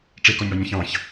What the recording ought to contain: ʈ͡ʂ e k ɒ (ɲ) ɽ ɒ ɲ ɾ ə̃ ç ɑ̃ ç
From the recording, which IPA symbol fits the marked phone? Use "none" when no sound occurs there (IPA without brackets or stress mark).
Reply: ɲ